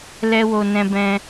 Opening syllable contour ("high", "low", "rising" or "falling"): high